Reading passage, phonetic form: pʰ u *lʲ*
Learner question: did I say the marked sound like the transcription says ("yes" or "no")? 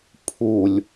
yes